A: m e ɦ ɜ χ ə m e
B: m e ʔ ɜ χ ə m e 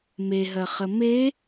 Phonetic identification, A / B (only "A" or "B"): A